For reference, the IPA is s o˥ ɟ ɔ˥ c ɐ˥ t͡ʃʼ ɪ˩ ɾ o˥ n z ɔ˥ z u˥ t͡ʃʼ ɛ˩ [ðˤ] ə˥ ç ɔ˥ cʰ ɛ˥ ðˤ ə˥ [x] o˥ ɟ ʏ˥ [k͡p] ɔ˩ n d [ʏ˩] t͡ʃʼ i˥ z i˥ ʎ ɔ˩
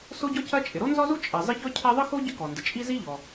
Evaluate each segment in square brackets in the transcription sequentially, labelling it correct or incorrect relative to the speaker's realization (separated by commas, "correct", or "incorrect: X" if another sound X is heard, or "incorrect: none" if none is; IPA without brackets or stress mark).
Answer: incorrect: zˤ, correct, incorrect: k, incorrect: ɪ˩